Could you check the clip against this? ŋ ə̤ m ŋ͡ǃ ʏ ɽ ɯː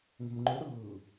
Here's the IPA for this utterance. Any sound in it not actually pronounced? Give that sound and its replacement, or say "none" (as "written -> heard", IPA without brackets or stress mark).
none